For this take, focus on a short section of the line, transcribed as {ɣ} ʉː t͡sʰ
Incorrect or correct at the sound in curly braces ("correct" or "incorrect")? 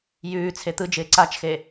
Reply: incorrect